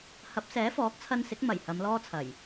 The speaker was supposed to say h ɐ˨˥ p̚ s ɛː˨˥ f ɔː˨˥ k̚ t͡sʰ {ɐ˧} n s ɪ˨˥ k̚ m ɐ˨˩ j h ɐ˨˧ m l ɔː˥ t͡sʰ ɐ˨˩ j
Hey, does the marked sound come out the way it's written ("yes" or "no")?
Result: yes